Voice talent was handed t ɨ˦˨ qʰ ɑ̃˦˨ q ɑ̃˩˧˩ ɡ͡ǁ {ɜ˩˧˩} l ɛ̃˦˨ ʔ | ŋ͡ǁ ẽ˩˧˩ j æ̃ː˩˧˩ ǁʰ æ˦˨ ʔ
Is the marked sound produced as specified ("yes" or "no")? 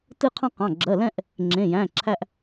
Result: yes